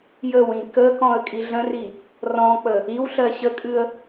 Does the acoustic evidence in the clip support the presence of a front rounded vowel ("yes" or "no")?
no